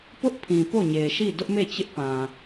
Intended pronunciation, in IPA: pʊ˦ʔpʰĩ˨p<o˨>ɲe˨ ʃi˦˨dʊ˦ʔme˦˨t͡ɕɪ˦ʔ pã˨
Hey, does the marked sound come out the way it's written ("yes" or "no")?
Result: no